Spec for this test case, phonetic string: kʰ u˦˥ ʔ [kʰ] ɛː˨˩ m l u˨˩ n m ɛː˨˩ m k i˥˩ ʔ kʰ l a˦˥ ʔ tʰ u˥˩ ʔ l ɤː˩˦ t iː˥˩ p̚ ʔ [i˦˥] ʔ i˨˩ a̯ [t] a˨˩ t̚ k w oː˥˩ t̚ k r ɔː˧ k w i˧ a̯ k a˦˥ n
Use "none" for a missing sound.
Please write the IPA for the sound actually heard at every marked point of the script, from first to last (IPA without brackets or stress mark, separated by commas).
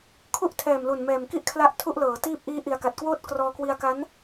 tʰ, iː˦˥, k